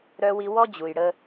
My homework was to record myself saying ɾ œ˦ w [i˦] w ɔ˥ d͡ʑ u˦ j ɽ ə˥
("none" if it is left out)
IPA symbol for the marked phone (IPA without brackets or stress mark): i˦